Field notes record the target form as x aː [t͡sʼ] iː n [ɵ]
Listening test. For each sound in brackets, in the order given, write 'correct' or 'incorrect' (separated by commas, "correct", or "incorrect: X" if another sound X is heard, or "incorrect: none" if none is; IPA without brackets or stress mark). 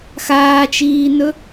incorrect: t͡ʃ, correct